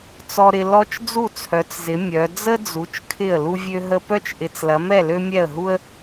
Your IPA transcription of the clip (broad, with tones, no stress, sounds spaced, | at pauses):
t͡s ɔ˥ ɾ ɪ˥ l ɔ˥ t͡ʃ d͡z u˥˨ t͡sʰ œ˨˦ t͡s z ɪ˨˦ mʲ œ˨˦ d͡z ə˥ d͡z u˨˦ t͡ʃ kʰ ɪ˥˨ ə̯ l u˥ vʲ ø˥ ɦ ə˥ p œ˥ t͡ʃ ʔ ɪ˨˦ t͡s l ɐ˨˦ m ɛ˥˨ l ø˥ mʲ ɛ˥˨ ə̯ ɦ u˥ ə̯